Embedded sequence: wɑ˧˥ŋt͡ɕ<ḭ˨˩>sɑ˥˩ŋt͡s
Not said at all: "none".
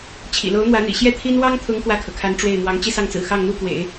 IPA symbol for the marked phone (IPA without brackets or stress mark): i˥˧